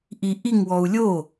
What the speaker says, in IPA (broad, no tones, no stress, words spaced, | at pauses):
ʔiʔiŋwɔu̯ lʲo